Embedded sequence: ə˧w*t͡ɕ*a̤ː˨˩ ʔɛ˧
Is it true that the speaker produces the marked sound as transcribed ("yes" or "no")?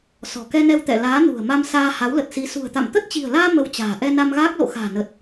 yes